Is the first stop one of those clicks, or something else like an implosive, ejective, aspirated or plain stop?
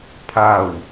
aspirated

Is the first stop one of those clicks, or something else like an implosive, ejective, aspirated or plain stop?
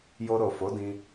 plain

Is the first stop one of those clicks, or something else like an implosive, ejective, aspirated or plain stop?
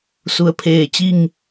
aspirated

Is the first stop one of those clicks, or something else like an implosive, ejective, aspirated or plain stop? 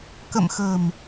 plain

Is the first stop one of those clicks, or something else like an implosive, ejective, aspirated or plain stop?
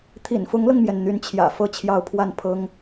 aspirated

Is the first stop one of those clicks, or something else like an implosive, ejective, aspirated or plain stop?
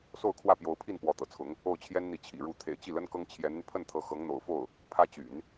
aspirated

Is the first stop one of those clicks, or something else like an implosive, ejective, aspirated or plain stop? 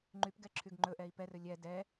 click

